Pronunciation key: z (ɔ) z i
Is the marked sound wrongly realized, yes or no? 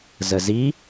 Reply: yes